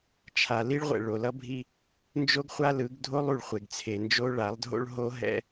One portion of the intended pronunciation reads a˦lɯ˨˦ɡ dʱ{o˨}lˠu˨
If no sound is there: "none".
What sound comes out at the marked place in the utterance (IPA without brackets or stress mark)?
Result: o˦